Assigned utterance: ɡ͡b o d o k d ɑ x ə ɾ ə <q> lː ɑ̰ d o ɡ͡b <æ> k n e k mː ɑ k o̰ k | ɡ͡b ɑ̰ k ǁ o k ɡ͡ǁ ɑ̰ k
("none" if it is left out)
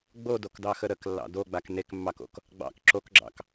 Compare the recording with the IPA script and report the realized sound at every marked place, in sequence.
k, a

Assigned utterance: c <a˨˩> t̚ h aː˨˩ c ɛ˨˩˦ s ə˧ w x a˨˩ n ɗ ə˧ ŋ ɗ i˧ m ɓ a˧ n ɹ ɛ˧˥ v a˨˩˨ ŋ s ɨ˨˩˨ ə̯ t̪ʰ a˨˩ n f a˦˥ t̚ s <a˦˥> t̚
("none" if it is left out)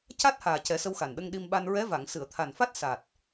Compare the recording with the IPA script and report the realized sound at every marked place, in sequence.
a˦˥, a˨˩

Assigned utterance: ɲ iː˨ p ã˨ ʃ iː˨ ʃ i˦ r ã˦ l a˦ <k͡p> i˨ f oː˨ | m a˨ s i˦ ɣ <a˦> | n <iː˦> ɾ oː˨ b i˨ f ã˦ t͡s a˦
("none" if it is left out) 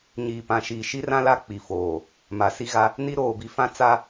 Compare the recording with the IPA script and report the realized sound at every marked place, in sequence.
k͡p, a˦, i˦

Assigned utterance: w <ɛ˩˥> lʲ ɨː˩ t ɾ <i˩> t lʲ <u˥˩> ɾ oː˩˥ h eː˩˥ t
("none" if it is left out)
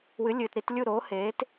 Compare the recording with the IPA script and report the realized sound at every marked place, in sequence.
ɨ˩˥, i˧, u˥˩

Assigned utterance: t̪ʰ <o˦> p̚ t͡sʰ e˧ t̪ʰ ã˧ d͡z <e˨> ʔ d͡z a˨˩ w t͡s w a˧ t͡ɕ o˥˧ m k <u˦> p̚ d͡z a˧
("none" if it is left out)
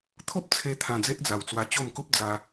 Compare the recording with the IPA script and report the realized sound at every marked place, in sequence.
o˦, e˦, u˦

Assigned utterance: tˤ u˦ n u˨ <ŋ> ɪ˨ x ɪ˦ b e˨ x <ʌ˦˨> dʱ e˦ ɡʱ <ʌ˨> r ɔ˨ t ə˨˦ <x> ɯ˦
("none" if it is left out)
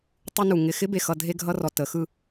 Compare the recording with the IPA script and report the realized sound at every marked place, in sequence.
ŋ, ʌ˨, ʌ˦, x

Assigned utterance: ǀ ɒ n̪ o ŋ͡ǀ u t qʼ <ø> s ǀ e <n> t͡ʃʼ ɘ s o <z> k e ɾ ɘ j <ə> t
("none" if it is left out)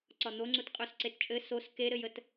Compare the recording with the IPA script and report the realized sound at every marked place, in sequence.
ø, t, s, ə

